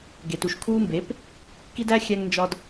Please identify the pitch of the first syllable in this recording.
low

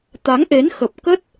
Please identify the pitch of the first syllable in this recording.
rising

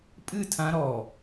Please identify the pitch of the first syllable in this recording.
falling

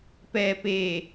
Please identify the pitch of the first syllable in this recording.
low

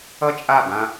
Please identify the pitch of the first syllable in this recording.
high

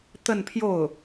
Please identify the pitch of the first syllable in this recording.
falling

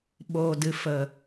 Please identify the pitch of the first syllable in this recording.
low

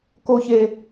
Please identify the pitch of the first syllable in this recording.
high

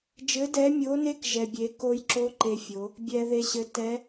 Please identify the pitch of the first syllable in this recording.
rising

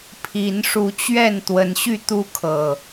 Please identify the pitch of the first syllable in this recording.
rising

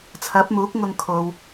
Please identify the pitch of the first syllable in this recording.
rising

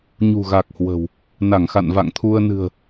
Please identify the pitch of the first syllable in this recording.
low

